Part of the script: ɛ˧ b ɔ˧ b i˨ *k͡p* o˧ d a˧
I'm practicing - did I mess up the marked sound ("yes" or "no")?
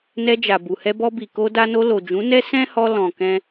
yes